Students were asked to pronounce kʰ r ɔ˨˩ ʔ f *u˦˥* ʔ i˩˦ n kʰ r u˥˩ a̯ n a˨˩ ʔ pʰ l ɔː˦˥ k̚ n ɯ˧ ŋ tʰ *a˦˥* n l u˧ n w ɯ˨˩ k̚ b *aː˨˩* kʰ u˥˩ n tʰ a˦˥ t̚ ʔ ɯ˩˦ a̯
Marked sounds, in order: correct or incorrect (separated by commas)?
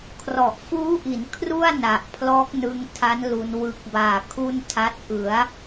incorrect, correct, correct